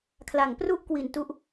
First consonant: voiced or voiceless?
voiceless